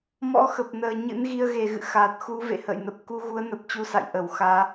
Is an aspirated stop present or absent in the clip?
absent